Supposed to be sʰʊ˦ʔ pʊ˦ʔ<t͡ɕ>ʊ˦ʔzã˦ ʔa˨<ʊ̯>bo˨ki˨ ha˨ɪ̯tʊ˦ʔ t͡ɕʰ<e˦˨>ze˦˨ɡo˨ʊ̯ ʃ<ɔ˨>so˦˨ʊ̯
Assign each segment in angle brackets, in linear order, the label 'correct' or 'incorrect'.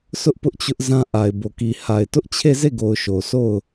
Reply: correct, incorrect, correct, incorrect

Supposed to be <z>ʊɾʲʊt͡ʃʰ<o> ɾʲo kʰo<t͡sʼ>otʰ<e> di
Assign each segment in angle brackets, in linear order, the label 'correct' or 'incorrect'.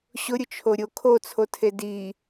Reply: incorrect, correct, incorrect, correct

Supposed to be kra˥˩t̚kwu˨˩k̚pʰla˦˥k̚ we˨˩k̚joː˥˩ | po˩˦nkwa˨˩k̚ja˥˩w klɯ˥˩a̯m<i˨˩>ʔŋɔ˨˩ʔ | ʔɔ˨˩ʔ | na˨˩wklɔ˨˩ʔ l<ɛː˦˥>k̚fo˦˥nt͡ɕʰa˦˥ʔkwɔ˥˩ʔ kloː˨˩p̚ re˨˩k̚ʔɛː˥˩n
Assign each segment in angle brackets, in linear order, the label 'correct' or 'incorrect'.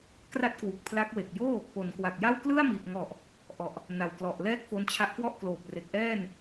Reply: correct, incorrect

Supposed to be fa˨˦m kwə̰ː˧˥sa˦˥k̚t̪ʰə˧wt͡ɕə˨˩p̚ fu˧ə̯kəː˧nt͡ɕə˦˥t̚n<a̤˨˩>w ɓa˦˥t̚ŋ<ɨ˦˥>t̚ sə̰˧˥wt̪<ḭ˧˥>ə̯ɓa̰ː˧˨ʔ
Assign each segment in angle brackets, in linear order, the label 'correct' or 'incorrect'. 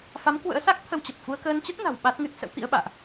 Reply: correct, correct, correct

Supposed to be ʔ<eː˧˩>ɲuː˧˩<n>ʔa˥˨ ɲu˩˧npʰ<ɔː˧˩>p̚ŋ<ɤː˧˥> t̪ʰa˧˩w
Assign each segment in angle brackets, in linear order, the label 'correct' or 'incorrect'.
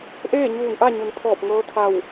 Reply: incorrect, correct, correct, correct

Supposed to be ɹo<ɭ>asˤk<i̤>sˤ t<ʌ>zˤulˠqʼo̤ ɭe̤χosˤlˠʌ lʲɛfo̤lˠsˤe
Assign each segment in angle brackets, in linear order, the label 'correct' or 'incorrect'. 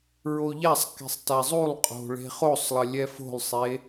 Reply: incorrect, correct, incorrect

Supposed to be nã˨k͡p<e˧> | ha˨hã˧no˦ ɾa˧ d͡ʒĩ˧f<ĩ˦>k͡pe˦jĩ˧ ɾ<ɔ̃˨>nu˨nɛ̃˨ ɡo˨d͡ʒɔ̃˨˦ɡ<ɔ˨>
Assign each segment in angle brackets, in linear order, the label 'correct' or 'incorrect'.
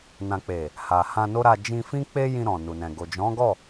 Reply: incorrect, correct, correct, incorrect

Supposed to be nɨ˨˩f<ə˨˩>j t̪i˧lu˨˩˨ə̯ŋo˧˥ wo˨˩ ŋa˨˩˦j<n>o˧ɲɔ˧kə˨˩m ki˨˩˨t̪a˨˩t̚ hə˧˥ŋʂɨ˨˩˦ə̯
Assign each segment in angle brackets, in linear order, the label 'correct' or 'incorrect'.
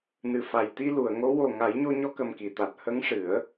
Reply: incorrect, incorrect

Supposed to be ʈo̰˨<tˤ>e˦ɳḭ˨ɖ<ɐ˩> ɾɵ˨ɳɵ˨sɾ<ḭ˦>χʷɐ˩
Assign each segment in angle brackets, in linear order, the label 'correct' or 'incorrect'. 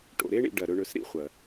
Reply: incorrect, correct, correct

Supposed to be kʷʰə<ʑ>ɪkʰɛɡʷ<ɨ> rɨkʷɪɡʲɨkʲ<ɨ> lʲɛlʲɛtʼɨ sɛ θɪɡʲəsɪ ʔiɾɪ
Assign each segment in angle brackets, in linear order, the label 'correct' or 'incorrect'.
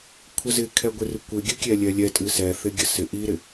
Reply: incorrect, incorrect, incorrect

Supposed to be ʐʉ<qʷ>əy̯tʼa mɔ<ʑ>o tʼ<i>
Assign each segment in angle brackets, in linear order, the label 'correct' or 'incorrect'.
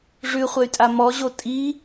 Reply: incorrect, correct, correct

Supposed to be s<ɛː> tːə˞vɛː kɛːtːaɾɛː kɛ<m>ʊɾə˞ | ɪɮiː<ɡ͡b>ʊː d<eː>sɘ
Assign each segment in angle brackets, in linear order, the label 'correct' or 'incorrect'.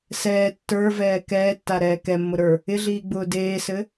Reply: correct, incorrect, correct, correct

